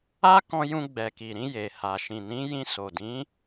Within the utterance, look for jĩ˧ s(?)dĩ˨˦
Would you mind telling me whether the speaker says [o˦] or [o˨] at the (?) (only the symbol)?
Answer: o˨